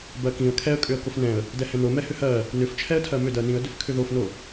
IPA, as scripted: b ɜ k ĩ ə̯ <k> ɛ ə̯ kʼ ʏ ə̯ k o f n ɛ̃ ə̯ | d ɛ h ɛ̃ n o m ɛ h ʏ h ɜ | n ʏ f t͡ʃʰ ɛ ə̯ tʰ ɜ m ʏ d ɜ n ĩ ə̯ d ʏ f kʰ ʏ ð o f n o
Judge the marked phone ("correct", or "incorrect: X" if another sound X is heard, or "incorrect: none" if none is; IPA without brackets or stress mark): incorrect: kʰ